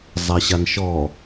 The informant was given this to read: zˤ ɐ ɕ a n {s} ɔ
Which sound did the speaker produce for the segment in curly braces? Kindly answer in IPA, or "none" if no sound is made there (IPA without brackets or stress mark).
ʃ